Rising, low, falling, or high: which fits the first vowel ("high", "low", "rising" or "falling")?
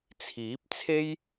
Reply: rising